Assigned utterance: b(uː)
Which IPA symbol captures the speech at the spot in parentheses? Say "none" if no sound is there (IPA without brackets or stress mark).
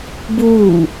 uː